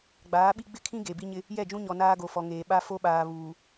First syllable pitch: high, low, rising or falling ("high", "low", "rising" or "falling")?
rising